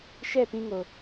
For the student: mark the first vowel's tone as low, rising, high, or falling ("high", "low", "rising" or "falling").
falling